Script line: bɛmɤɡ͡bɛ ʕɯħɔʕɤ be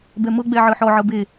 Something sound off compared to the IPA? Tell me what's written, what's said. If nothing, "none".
none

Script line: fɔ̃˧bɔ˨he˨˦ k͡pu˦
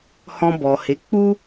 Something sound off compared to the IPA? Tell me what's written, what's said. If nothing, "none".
f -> h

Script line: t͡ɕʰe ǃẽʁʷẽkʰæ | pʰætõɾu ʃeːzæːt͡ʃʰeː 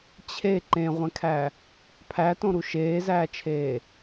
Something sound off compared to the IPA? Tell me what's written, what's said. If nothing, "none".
none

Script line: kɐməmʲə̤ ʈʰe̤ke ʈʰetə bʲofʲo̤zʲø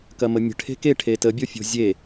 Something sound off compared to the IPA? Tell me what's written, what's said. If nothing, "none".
ø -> e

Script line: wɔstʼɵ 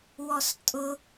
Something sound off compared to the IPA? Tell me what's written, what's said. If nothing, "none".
ɵ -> ʊ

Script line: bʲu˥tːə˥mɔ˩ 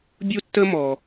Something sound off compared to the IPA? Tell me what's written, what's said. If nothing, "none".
none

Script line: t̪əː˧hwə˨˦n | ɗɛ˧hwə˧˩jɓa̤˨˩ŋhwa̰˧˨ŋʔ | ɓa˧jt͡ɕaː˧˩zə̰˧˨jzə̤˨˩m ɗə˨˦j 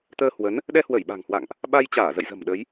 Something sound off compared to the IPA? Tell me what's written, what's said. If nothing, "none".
none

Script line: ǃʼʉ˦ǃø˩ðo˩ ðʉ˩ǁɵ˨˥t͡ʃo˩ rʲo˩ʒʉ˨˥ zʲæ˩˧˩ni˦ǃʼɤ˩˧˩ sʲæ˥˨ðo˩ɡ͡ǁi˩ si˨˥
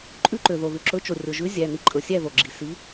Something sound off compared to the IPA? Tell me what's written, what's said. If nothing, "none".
ɤ˩˧˩ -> ɵ˩˧˩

